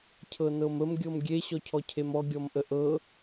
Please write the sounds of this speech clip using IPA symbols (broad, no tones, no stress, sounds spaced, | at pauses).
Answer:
cʰ ɤ n ɤ m ə m ɡʲ ɤ m ɡʲ e ɕ ɔ cʰ ɔ cʰ e m ɔ ɡʲ ɔ m ʔ ə ʔ ɤ